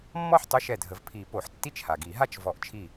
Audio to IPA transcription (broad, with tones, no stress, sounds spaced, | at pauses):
mː ɔ˥˧ ħ tˤ ø˧˥˧ ʃ ɛ˧˩ dʱ ə˨˩˦ v pʰ i˨˩˦ p o˨˩˦ ħ tː i˥˧ t͡ʃ h a˩ ɡ i˨˩˦ ɦ a˥˧ t͡ʃ v ɔ˨˩˦ ʔ t͡ʃʰ i˧˩